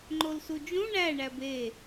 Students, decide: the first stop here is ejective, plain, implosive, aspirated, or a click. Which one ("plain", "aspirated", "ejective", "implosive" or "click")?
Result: click